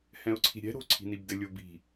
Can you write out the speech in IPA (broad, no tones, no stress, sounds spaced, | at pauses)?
h ɛ̃ ʊ̯ ǀʰ i̤ ɾʲ ɛ̤ ɾ o̤ ǀʰ i̤ n i b d ɘ lʲ o b i̤